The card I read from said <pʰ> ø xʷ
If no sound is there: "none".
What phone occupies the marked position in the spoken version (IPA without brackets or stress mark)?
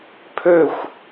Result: pʰ